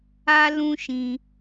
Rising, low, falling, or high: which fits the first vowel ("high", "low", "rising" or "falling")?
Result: high